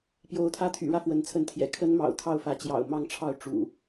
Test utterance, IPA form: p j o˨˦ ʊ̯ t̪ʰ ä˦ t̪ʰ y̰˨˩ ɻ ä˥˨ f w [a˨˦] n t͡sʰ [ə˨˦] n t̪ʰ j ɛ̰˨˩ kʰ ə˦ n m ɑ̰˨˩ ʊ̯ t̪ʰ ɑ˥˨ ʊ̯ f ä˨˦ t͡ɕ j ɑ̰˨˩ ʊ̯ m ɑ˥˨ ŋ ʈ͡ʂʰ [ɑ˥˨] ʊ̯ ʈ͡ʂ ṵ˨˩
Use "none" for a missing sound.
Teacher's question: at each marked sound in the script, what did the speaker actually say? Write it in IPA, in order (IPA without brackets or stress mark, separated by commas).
ə˨˦, ə˨˦, ɑ˥˨